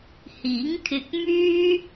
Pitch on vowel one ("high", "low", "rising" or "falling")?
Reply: rising